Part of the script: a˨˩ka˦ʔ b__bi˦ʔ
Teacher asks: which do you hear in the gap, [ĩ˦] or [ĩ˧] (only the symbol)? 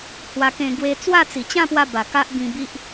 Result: ĩ˧